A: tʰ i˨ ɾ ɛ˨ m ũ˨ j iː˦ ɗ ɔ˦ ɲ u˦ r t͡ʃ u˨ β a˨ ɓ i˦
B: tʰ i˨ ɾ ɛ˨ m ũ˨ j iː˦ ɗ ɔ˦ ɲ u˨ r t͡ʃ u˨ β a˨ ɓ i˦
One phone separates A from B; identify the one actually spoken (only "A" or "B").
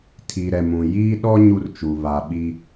A